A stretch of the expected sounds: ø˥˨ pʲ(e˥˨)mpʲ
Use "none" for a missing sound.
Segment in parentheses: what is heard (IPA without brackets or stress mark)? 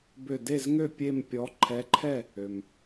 e˥˨